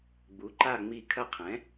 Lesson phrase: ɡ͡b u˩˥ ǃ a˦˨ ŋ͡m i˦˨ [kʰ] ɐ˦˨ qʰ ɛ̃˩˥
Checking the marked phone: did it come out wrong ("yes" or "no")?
no